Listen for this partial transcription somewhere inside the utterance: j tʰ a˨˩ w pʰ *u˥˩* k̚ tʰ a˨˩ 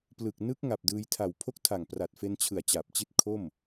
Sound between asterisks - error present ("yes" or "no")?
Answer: yes